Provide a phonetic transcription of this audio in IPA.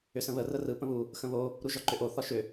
ʏ s ə̃ β ə r ə r ɯ p ə̃ β u | x ə̃ β o | ɾ u ʒ ɒ ǃ ʏ ʔ o θ ɒ ʃ ʏ

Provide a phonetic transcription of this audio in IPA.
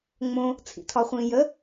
ŋ͡m õ | t͡sʰ ḭ tʰ ɒ χʷ ĩː j ə

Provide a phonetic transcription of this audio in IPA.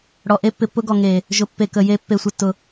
ɽ ɔ˨ ʔ e˦ pː ɪ˨ pː ʊ˦ ɡ ɔ˨ ŋ e˨ | ʒ ʊ˨ pː e˨ k ə˨ j e˦ pː e˨ sʷ ɪ˨ tː ʊ˨

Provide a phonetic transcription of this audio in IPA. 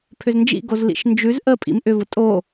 pʰ ʏ z n d͡ʒ ḭ ɡ o z l ḭ ʃ n d͡ʒ ʉ z ʔ ə pʼ ḭ m ʔ ʏ v ʊ tʼ o

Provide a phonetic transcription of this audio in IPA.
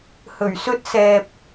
h ɵ˨˩ ɥ s ɵ˥ t̚ s ɛː˧ p̚

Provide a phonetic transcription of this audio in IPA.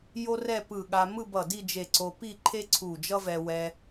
j o˥ r ɛ˥˧ p ɯ˧˩ ɠ a˧ m ɯ˥˧ b ʌ˧˩ d i˥˧ d͡ʒ e˧˩ ǀ o˧ p i˥˧ ǃʰ e˥ ǀʰ u˧˩ d͡ʒ ʌ˥ v ɛ˧ w ɛ˧

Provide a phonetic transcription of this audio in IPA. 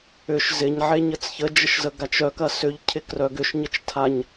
ʏ ʃ z ɪ ɲ ʕ e ɲ ə t͡s ç ə d͡ʒ ə ʃ z ə ɡ a t͡ʃ œ k ɐ s ʏ ʎ cʰ ɪ k r œ ɡ ʏ ʃ ɲ ə t͡ʃ tʰ a ɲ

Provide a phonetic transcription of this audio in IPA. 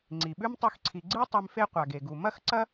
ŋ͡ǀ i˩ ɓ ʉ˥ m tˤ ɵ˦ x ǀʰ i˨ ɡ͡ǀ ɨ˥ tˤ e˦ m f e˥ qʷ a˩ ɡ e˩ ɡ u˩ m ɐ˥ x ǀ ɐ˥

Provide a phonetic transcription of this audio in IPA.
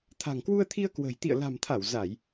t̪ʰ a̤˨˩ ŋ k w u˧ ə̯ t̪ʰ i˧ ə̯ k w ə̤˨˩ j t̪ ḭ˧˨ ə̯ l a̤˨˩ m t̪ʰ a˧˩ w z a˧˩˨ j

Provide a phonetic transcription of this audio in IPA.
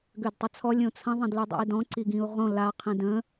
ɡ ø d tˤ ə t͡sʰ ɔ lʲ õ t͡sʰ ə̃ ðˤ ə̃ d l y dˤ o̰ i̯ d ɔ̃ ǀ i ɡ ĩ u̯ ʁ õ l a qʰ ĩ d ə̃

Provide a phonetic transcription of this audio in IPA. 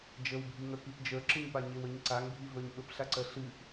d͡ʒ ə w bʱ i ŋ ə˞ k i p d͡ʒ ə˞ ǁ ɨ ɲ p a ɲ e w ə ɲ ǀ a ŋ bʱ i v ə˞ ɲ ɓ ə p ɬ a ǀ ɜ ɬ ɨ ʔ

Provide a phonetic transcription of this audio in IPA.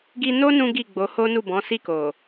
ɡ i˧ n o˦ n ũ˦ ɡ i˦˨ ɡ͡b o˨˦ h o˦ n u˦˨ b ɔ̃˨˦ s i˦˨ k o˨

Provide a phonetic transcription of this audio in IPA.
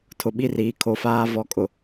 tʰ ʊ˨ ɓ i˦˨ r iː˨ kʰ o˨ f aː˦ v ɔ˨ kʼ ʊ˨

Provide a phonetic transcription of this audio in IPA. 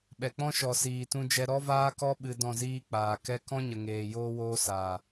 ɓ ɛ˨ k͡p ɔ̃˦ ʃ ɔ˨ s iː˨ t ũ˧ d͡ʒ ɛ˧ ɾ ɔ˦ v aː˦ k ɔ˦ ɓ ɨ˧ d ɔ̃˦˨ z iː˦ k͡p aː˨ k ɛ˦ k ɔ̃˦ ɲ ə˨ ŋ eː˨ j oː˦ w oː˦ s aː˨

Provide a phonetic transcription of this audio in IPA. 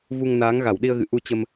v u˧ ŋ n aː˨˦ ŋ ɣ a˧˩ w ɗ i˧ ə̯ ɣ ɨ̰˧˨ ʔ u˧ t͡ɕ ə˧ m

